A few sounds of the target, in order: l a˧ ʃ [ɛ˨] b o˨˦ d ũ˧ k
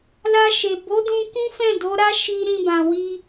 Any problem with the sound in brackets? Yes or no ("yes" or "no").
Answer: yes